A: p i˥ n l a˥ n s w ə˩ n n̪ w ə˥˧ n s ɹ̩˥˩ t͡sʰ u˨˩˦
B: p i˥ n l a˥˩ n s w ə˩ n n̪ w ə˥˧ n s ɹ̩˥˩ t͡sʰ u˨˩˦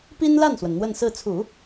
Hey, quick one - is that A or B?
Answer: B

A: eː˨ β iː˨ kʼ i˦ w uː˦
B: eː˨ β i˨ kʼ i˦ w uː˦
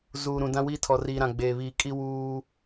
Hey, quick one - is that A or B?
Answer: A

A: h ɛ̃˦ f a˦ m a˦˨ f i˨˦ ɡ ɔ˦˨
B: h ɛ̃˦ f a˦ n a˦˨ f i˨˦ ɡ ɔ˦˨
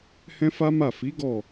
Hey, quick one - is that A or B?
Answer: A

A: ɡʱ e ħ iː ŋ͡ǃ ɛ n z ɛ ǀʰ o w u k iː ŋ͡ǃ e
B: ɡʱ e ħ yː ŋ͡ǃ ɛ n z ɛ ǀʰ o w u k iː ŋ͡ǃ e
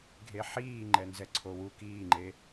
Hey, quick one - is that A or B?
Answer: A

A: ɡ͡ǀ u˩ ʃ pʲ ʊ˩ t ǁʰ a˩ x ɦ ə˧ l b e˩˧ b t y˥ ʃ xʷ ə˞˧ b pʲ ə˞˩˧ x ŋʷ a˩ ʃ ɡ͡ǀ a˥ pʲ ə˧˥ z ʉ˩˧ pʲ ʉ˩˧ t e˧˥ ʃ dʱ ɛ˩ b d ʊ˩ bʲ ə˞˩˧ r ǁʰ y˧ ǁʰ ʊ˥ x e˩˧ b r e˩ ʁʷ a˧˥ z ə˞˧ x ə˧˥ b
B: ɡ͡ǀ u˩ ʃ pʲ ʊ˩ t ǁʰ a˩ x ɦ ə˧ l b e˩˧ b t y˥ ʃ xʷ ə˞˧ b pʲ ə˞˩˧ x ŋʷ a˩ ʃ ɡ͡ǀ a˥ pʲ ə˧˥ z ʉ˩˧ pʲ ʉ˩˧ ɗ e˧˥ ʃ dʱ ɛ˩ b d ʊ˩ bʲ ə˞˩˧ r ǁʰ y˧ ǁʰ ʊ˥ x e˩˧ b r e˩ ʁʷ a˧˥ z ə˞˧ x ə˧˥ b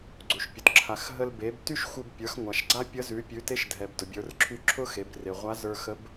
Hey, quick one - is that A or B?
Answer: A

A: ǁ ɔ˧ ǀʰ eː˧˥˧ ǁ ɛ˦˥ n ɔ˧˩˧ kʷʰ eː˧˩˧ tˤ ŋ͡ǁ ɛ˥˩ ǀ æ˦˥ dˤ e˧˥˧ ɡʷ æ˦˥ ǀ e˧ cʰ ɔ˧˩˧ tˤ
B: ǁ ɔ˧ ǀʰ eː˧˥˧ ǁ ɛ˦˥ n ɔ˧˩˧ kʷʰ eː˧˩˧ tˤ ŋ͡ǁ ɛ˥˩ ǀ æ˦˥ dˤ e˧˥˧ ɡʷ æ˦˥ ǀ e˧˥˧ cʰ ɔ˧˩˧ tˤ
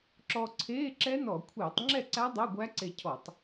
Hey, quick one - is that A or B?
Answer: A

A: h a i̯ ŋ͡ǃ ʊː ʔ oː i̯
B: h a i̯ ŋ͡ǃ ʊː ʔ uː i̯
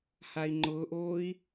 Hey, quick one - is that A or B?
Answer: A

